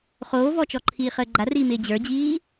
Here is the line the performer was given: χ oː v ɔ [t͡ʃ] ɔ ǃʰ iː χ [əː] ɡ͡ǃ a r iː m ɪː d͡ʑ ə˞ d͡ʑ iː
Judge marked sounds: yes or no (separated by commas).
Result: yes, yes